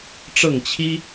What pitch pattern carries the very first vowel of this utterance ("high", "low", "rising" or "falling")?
falling